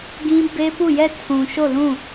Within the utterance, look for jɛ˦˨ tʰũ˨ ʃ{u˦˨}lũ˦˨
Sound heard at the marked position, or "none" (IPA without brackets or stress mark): o˦˨